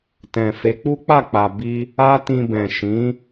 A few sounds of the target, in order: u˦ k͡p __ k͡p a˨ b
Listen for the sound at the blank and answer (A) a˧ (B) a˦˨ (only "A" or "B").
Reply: B